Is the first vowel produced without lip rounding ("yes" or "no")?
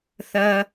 yes